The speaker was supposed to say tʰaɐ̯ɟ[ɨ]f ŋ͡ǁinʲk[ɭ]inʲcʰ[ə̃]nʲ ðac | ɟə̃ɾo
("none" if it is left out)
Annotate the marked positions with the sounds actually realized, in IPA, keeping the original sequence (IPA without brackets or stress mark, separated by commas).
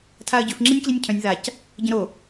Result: ʏ, l, œ̃